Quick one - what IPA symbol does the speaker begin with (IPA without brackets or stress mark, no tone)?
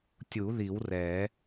tʲ